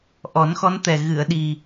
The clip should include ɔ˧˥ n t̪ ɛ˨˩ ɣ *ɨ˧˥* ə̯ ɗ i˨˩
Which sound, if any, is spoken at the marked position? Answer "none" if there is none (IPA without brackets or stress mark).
ɨ˨˩˨